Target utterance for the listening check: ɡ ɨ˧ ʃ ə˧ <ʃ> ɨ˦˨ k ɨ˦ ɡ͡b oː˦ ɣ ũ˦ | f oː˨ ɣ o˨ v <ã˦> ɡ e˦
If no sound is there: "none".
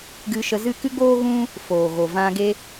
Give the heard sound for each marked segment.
z, ã˧

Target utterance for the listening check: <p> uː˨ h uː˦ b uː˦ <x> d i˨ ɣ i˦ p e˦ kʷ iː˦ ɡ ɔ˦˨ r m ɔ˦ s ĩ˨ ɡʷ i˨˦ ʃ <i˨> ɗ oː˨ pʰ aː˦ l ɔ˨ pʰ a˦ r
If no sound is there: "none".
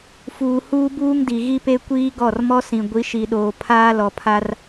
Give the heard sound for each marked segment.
f, ŋ, i˨

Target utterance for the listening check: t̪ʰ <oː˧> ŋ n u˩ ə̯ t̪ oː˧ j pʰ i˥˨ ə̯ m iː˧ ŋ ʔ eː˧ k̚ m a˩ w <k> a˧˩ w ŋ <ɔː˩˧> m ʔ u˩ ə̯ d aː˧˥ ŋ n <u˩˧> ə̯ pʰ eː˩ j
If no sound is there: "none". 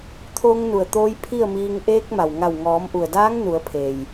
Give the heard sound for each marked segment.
oː˧, ŋ, ɔː˩˧, u˩˧

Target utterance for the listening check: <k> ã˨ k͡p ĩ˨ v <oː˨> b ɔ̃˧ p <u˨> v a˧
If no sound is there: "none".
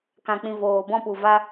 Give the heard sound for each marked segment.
k, oː˨, u˨

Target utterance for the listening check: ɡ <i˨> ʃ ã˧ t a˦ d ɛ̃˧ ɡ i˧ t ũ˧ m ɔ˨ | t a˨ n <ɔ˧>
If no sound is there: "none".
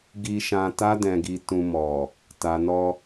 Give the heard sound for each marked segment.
i˧, ɔ˧

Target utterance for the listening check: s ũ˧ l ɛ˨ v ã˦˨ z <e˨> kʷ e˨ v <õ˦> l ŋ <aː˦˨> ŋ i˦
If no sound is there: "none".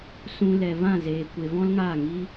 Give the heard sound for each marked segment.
eː˨, ɔ̃˦, aː˦˨

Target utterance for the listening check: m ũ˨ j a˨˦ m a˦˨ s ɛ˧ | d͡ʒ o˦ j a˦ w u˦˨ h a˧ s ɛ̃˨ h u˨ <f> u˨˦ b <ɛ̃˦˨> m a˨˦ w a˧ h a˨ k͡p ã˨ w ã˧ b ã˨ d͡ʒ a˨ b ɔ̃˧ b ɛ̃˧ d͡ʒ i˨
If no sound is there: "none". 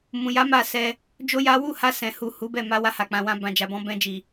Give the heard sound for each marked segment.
h, ɛ˦˨

